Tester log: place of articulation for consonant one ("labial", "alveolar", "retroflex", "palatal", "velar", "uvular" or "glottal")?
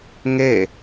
velar